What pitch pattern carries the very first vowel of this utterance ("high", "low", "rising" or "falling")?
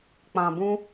low